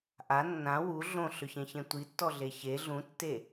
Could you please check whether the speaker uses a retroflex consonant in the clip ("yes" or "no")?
no